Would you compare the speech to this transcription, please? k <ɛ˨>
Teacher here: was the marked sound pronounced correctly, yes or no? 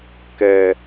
yes